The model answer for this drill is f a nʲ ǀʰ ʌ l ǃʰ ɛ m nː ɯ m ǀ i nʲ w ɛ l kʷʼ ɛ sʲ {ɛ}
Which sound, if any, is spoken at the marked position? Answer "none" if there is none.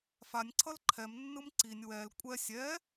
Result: ɛ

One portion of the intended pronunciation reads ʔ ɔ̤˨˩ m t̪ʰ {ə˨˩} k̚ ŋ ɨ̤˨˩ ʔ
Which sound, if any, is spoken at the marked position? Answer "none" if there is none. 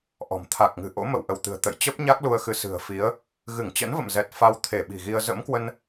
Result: a˨˩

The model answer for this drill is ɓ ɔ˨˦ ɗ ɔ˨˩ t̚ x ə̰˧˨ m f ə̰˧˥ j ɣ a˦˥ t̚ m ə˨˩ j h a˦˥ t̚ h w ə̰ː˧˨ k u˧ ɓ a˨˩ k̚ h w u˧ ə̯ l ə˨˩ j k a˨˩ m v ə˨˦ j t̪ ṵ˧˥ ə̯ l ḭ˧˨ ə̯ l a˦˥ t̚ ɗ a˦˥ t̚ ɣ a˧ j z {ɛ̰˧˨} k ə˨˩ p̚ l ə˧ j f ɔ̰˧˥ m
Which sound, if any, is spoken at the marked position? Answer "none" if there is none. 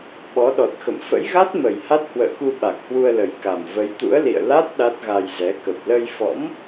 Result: ɛ˨˦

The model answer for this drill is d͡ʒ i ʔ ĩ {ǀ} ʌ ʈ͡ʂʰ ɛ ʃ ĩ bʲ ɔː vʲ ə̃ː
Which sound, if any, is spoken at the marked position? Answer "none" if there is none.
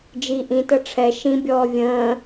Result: t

